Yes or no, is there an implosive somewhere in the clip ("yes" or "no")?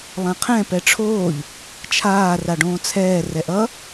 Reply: no